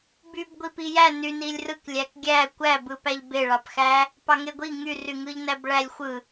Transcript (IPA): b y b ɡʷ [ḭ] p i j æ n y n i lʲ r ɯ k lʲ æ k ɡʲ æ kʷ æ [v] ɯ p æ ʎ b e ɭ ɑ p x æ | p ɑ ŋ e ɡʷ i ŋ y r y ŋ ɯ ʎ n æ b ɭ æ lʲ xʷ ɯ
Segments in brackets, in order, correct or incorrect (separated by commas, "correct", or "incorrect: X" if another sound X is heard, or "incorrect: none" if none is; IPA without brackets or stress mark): incorrect: i, incorrect: b